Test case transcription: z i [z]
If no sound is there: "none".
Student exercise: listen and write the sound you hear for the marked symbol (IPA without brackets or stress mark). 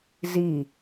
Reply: none